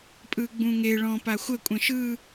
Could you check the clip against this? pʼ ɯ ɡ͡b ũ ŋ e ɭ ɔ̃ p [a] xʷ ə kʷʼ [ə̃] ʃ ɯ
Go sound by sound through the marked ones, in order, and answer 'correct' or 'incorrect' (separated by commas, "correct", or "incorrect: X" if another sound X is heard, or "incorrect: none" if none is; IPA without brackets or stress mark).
correct, correct